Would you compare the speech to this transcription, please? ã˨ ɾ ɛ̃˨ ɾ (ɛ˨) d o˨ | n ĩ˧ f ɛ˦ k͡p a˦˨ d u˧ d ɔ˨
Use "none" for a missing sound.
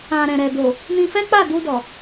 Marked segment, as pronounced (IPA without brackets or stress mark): ɛ˨